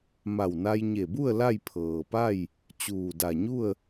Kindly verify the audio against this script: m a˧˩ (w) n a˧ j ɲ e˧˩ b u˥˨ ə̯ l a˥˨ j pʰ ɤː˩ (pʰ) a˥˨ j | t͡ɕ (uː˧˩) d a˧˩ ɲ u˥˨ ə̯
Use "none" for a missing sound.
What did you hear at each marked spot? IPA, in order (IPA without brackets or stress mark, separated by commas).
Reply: w, p, uː˧˩